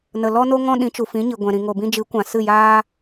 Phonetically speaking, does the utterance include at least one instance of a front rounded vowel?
no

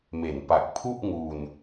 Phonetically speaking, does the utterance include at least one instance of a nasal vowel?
no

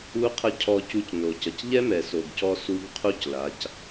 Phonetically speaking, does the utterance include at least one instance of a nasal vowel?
no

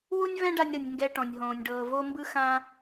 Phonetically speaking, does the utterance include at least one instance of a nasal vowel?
yes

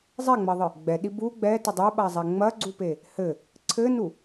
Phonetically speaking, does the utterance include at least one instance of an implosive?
yes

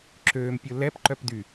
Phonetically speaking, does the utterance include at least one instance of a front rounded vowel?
yes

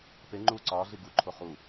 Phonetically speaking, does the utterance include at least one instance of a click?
yes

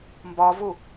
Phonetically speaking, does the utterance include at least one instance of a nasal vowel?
no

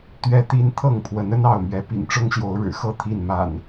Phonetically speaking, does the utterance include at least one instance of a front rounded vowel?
no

